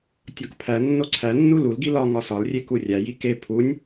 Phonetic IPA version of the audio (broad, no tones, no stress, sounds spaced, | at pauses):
tʲ ɒ k pʰ æ nː o ǀʰ æ nː u l u l ɡ i l ɒ ŋ ɒ s ɒ l rʲ e k u rʲ æ j i k e pʰ u nʲ